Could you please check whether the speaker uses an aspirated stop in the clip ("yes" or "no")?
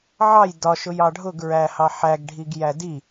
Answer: no